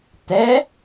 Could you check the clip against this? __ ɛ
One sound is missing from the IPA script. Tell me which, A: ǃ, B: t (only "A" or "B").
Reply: B